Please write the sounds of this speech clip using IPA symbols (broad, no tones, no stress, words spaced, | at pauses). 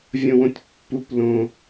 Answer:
vʲõwõtʲpːup lõ